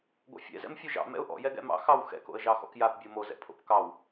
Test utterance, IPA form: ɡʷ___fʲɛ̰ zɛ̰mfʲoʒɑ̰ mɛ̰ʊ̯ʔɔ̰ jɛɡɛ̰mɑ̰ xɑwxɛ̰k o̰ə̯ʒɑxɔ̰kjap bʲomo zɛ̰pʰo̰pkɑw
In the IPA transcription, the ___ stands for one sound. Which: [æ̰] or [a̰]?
a̰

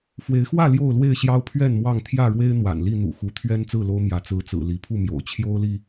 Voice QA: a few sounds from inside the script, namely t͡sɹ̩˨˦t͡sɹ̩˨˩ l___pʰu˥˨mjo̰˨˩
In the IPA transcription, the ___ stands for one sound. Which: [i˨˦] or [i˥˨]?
i˨˦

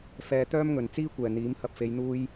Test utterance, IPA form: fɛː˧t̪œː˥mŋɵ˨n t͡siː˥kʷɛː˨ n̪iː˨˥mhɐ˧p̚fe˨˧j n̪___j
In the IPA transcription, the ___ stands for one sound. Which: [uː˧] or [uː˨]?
uː˧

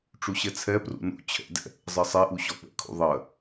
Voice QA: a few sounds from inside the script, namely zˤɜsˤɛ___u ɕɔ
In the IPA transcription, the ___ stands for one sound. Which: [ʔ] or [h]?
ʔ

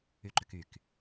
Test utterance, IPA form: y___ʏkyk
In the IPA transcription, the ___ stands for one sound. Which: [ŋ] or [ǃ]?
ǃ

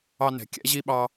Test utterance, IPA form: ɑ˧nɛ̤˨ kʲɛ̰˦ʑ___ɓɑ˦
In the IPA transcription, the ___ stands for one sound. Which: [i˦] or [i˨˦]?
i˦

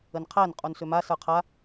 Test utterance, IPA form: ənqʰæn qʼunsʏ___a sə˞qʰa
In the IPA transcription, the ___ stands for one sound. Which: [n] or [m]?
m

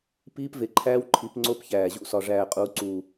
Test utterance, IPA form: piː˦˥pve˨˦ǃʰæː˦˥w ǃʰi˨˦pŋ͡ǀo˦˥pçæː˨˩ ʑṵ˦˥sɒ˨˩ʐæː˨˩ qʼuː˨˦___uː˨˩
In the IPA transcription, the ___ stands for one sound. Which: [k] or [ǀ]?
ǀ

